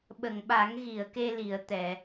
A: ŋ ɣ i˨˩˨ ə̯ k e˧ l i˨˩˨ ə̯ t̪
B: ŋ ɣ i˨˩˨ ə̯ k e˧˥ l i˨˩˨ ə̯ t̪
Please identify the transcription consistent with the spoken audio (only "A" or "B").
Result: A